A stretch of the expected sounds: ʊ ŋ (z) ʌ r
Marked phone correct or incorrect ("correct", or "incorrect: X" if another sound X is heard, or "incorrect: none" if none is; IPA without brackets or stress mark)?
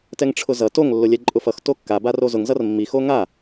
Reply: correct